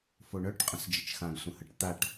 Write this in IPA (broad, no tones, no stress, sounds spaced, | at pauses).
f o ɳ œ ʈ qʼ ə̃ s d͡ʒ ə t͡ʃ x ã ɡ sʷ ə̃ h ə ʈ t̪ a ʈ